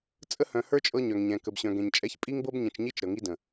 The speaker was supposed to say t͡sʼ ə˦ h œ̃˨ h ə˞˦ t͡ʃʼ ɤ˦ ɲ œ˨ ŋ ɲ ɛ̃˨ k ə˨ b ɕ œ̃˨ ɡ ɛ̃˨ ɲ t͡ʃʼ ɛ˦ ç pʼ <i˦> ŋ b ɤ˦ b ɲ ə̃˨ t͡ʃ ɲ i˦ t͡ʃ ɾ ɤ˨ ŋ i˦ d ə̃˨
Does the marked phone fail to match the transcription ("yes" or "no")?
no